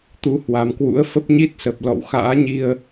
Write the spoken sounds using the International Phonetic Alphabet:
t̪u˨˦hwa˨˩mkwṵ˧˥ə̯ fə˦˥p̚ɲi˦˥t̚sə˨˩p̚ lɔ̰˧˨wxa̰ː˧˥ ɲi˧ə̯

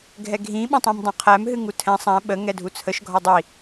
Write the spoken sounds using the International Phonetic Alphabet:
ɡʱɛɡʱĩ ɓõtˤĩmdˤõqʰæm ɦɨŋutʰɛ̃ sˤæ̃ ɓə ŋɛdʱut͡sʰəʃ ɡʱɒdˤi

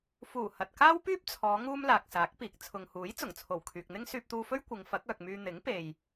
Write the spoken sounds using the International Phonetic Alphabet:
fuː˨˩ hɐ˨t̚kaː˥wpyː˥p̚t͡sʰɔː˨˧ ŋuː˥mlaː˨k̚saː˨˥k̚piː˨k̚ t͡sʰʊ˨ŋhuː˨˥j t͡sʊ˨˩ŋt͡sʰo˨˩wkʰyː˨k̚n̪ɪ˥ŋ syː˧p̚t̪uː˧fɵ˥ɥ kʷɪ˨˧ŋ fɐ˨˥k̚œː˨k̚myː˧ n̪ɪ˨˥ŋpe˨j

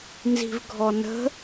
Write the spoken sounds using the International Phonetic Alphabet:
nzi̤vɡʱɔnə̤

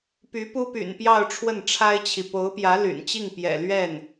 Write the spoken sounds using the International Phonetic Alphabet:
py˧˥pu˥py̰˨˩npjɑ˥˧ʊ̯ ʈ͡ʂʰwə˥˩nʈ͡ʂʰa˥ɪ̯t͡ɕʰi˨ po˧˥ʊ̯pjä˧˥ ly̰˨˩n t͡ɕi˥˩ŋpjɛ̰˨˩lɥɛ˥˩n

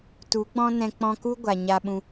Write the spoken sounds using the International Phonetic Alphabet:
tu˨˦ɡ͡bɔ̃˦nɛ̃˧ k͡pɔ̃˧ku˦ ɡʷa˨ɲa˧ɓũ˧

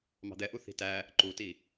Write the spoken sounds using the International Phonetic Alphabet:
mɑ̤d̪ɛʔu θi̤tæ | ǃuti

